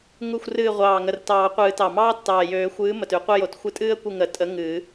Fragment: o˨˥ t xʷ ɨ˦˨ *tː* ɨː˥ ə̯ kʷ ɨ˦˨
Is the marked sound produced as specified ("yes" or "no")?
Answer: no